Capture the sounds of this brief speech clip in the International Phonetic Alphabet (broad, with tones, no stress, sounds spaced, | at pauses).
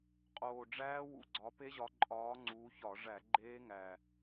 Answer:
qʼ oː˨˩ ɖ͡ʐ æː˦˥ w ṵ˨˩ ɡ͡ǀ ɒ˨˦ p e˦˥ ʑ ɒ˨˦ ǃʼ ɒː˨˦ ŋ͡ǀ uː˨˦ ç ɒ˧˩˧ ʐ æ˧˩˧ ɡ͡ǃ eː˦˥ ŋ æ˨˩